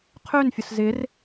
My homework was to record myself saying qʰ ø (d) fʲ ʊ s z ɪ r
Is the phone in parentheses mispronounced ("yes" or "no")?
yes